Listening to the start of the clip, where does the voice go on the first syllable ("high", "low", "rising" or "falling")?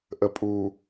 low